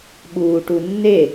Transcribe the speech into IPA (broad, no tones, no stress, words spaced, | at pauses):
ɓuːʈunːe